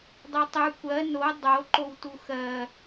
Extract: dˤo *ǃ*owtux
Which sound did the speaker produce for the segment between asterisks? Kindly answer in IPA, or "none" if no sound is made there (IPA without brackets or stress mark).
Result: ǃ